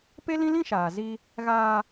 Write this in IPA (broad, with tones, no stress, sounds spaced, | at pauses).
p e˦ l ĩ˦ l ĩ˦ ʃ aː˨ z i˦ | ɣ aː˦